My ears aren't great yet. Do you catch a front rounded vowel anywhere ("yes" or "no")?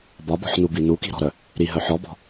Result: yes